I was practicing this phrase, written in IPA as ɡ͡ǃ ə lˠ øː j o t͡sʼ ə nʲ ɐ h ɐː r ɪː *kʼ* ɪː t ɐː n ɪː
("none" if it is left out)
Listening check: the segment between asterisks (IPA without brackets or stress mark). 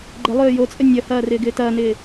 ɡ